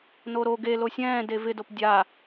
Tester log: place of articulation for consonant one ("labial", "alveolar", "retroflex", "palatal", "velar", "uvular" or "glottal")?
alveolar